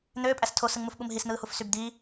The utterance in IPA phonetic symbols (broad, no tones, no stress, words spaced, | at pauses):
n̪øːpʼæs tʰosɯŋmufɓum ɦisn̪ɯːhuf sybd̪iː